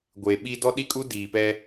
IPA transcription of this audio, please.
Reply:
ɡʷ e˨ ɓ i˦ d ɔ˦ ɗ i˦ kʼ u˦ d iː˨ p ɛ˦

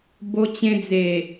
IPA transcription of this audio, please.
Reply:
b o˧ t͡ɕ ẽ˧ d͡z e˨˩

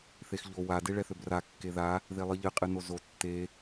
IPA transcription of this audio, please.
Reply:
θ e x ʎ o w a d e ɭ ɛ θ ø b r a kː e ð a | ð e lˠ ɨ ʎ ɨ qʼ ɨ n o z o tː e

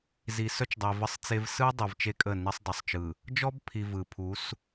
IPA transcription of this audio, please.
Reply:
z i˨ s œ˦ t͡ʃ dˤ e˨ v ə˦ sˤ t͡s e˦ v s ɯ˦ dˤ ɯ˨ v t͡ʃ e˦ kʼ ə˦˨ n i˦ sˤ dˤ ə˨ sˤ t͡ʃ ɯ˨ | d͡ʒ ɔ˦ b pʰ i˨ v ɯ˨ pʰ u˨˦ s

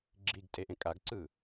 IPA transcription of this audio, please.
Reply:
ɡ͡ǁ i ɡ tʼ e ʔ ẽ kʼ a ɡ ǀ ɯː

